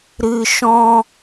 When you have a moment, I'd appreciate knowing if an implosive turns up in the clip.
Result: no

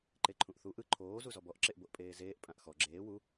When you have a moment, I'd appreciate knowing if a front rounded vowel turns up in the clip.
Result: no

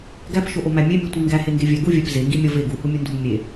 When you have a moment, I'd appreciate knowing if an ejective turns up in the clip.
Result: no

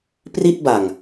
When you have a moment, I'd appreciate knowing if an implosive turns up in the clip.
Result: no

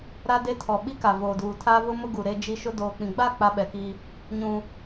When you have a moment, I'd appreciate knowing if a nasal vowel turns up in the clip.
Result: yes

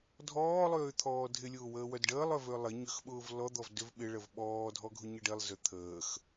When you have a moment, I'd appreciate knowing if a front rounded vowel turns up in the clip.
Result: yes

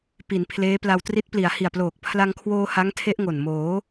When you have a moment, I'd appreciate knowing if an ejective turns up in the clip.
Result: no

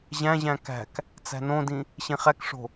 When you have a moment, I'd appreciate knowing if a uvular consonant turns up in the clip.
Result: yes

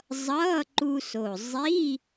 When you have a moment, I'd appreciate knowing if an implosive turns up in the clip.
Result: no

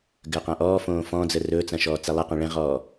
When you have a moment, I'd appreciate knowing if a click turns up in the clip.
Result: no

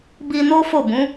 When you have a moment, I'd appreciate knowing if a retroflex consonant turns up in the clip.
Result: no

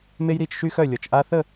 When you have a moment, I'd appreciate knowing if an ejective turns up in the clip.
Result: no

